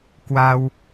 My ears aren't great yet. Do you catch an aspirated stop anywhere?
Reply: no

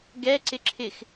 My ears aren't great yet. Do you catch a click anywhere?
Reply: yes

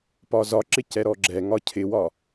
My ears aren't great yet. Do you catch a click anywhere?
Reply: yes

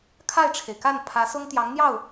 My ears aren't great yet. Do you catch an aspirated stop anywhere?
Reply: yes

